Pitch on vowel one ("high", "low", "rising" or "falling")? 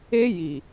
high